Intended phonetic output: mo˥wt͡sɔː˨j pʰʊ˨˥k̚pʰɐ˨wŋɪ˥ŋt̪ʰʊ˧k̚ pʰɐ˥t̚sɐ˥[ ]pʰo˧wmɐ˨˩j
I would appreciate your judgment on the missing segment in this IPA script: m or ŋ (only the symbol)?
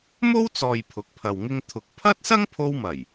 ŋ